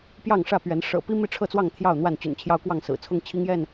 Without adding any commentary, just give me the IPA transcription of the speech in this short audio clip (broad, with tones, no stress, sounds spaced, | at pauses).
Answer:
p j ɑ˥˨ ŋ ʂ ä˥˨ p ɥ ɛ˨˦ n ʂ ɤ̰˨˩ p i˦ m i˥˨ ʈ͡ʂʰ ɤ˥˨ t͡s w ɑ˥˨ ŋ t̪ʰ j ɑ˥˨ ʊ̯ n̪ w a˥˨ n t͡ɕ y̰˨˩ n t͡ɕʰ j ɑ˦ ʊ̯ k w ɑ˥˨ ŋ s ɹ̩˨˩ t͡sʰ ʊ˦ ŋ t͡ɕʰ i˦ ŋ j ɛ˥˨ n